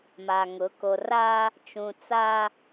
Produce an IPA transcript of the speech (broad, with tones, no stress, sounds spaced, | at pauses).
m a˨ ŋ ʊ˨˦ k o˨ r aː˦ | t͡ʃ ũ˨ t͡s aː˦